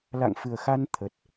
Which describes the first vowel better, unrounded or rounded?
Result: unrounded